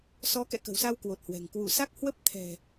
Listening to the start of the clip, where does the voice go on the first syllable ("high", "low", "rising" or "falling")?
rising